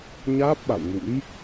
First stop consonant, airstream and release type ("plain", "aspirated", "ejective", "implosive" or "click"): plain